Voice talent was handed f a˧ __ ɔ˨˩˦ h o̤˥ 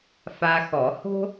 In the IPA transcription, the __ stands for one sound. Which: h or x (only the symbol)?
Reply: x